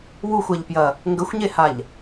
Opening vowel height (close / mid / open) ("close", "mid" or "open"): close